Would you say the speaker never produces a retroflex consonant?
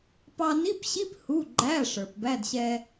no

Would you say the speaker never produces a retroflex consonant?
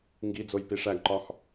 no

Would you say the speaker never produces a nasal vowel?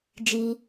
yes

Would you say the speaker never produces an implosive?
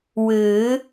yes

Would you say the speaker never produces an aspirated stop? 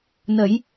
yes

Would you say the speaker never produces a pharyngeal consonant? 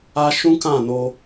yes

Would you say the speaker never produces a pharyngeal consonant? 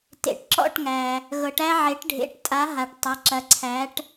no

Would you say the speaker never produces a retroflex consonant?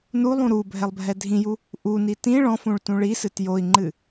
no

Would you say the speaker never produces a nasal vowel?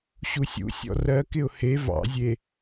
yes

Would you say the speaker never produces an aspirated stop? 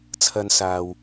no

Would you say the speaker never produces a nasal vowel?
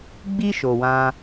no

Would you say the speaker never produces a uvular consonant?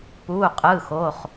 no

